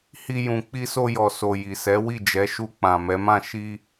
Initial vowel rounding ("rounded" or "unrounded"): unrounded